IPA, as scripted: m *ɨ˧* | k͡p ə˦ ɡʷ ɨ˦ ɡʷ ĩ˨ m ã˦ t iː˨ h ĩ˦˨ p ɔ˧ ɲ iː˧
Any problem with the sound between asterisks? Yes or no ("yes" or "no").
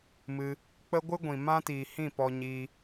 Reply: no